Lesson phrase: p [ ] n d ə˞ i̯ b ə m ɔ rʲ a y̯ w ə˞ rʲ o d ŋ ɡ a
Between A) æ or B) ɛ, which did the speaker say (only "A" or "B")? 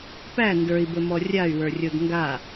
A